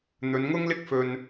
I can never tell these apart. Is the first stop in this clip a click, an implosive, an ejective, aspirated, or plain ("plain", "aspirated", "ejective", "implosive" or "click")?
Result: plain